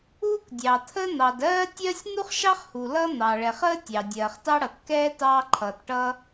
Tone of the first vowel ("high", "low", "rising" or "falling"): high